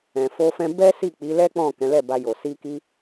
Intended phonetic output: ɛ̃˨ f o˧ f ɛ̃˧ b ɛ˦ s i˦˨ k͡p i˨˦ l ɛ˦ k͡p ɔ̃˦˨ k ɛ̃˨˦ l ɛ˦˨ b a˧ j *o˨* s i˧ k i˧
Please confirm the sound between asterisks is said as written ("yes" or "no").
yes